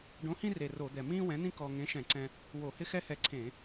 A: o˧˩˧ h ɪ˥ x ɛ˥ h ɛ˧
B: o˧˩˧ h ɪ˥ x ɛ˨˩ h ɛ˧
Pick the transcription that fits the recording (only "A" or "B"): A